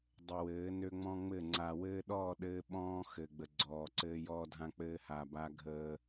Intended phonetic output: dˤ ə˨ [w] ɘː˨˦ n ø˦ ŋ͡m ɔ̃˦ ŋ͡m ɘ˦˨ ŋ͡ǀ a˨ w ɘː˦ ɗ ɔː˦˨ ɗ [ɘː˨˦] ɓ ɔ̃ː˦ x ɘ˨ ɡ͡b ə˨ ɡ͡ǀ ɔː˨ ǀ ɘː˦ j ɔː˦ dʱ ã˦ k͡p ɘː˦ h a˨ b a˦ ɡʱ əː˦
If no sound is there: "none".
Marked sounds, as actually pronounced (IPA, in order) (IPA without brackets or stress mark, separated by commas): w, ɘː˦